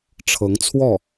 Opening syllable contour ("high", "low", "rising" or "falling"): rising